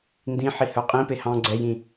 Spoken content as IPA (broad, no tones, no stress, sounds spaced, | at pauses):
n d ĩ ħ i h œ qʼ ĩ p e h ɑ̃ ɡ͡ǀ ɛ j ĩ